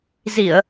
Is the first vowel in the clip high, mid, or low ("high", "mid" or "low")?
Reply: high